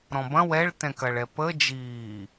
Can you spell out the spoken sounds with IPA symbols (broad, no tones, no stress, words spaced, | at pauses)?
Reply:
ɾɔ̃bɐ̃ wɛɭtɛ̃kɐɭ ɛpə d͡ʒiː